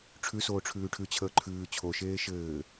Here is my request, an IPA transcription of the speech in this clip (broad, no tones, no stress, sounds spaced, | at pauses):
ʈ͡ʂʰ ʉ s oː ʈ͡ʂʰ ʉː ʈʰ ʉ t͡ɕʰ əː ǃʰ ʉː t͡ɕʰ o ʃ eː ʃ ɘː